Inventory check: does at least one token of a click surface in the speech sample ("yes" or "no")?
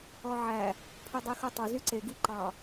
yes